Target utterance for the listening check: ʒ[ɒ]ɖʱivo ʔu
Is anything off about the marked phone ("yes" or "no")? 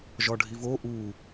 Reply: no